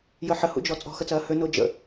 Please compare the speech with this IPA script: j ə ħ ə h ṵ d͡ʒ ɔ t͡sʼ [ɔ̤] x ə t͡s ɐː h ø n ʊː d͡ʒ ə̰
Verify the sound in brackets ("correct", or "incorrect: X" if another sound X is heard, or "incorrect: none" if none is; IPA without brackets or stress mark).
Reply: correct